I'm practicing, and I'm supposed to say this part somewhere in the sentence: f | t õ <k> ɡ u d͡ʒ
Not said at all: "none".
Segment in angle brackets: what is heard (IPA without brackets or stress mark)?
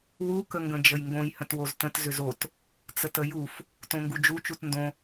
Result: ŋ